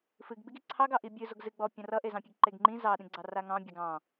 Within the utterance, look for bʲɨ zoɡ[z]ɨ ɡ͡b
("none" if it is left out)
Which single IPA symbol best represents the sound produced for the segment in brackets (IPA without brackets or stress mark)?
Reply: z